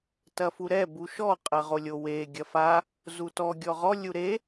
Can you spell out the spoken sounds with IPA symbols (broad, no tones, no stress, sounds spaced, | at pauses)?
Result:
t ɐ f u ɾ ɛ b u ʃ ɔ qʼ ɐ ʁ o lʲ o w e ɡʲ ɐ f a | z u t ɔ ɡʲ ɔ ʁ ɔ lʲ u ɾ e